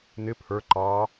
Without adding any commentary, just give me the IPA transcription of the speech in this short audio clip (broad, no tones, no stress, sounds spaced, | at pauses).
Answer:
n ɪ pʰ ə˞ ǃ ɑ